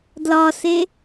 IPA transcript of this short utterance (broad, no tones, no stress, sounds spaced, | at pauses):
d l ɒ s e